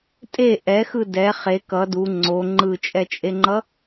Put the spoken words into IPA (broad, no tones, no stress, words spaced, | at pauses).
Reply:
tʼe ʔɛxɯ dɛ χe kʌ du ŋ͡ǀo ŋ͡ǃɯt͡ʃʼɛt͡ʃʼeŋ͡ǃʌ